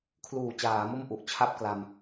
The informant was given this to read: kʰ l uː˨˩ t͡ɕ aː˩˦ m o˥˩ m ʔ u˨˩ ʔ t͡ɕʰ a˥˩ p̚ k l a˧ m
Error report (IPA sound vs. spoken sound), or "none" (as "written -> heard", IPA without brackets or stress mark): none